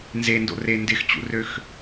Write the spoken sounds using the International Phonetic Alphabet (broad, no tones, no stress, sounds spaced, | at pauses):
n z e n d o̰ r e n d ɪ x t͡ɕ ṵ r ø x